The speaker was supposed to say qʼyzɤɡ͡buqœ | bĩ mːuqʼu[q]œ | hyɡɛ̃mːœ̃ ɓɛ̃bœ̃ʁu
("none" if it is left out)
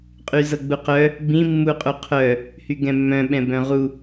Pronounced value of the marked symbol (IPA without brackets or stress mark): qʰ